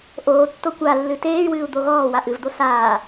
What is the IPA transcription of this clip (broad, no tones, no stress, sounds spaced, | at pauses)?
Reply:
ʔ oː tː o kʷ a lː ɨ t eː y̯ w ɨː u̯ d̪ o ɣ ɔː w a ʔ ɨ v d̪ o s aː